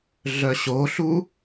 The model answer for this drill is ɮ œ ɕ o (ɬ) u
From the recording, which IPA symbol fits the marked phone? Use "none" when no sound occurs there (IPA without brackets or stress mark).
ɬ